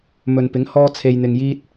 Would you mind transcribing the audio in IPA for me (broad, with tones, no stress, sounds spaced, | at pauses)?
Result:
m ɵ˨ n p ɪ˨˥ ŋ h ɔː˥ t͡sʰ e˧ j n̪ ɪ˧ ŋ j iː˥ t̚